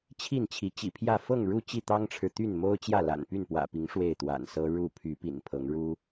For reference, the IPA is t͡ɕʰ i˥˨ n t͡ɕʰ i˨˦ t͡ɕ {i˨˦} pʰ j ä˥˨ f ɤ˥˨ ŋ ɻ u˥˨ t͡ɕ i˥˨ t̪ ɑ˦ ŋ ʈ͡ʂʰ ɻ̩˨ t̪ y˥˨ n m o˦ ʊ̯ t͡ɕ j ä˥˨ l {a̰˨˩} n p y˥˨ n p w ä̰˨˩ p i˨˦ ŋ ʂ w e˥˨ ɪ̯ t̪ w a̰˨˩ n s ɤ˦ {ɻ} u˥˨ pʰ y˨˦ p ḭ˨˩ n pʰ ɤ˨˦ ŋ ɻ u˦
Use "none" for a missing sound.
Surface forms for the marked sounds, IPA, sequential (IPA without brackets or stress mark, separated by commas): ḭ˨˩, a̰˨˩, ɻ